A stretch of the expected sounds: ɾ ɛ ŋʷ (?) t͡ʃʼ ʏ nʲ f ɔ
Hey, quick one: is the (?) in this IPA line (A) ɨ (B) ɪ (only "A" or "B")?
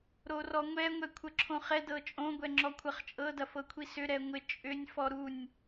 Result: B